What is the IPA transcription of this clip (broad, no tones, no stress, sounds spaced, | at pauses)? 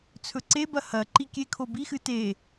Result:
t͡sʰ ɵ ǀ e b ɐ h ɐ ǃ i kʲ e kʰ o b i x ɨ t e